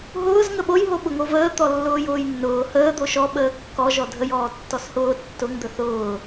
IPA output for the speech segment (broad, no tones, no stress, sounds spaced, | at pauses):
ɦ ʊː z ŋ ə ɓ o j ɦ o ɓ ʊ ŋ o v əː t̪ ɔ lː ʊː j ʊː j nː ʊː h əː d̪ o ʃ ɔ ɓ əː kː ɔ ʒ ɔ dʱ ə j ɔː tː ɔ s h ʊː tː ʊ ŋ d̪ ə θ ʊː